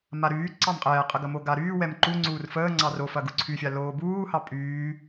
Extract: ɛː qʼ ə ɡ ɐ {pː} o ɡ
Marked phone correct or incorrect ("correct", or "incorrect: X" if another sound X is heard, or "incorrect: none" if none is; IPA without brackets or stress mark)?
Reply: incorrect: m